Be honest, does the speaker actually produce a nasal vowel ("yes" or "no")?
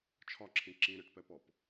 yes